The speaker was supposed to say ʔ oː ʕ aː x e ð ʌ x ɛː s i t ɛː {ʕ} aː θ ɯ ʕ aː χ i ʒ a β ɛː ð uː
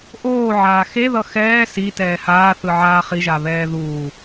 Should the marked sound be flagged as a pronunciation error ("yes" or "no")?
yes